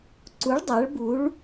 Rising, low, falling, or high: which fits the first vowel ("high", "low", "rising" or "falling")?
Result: rising